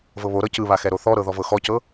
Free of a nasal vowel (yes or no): yes